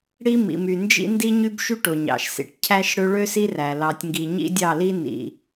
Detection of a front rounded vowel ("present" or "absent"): present